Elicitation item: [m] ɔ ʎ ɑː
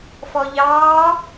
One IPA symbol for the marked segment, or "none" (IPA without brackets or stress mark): f